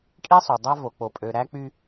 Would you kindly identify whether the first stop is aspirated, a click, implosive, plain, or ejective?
ejective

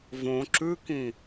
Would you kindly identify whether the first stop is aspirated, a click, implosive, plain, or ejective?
click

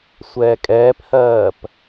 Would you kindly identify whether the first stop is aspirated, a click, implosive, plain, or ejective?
ejective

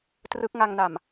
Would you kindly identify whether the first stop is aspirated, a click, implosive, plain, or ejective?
plain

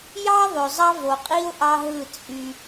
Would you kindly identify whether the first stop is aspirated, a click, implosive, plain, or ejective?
ejective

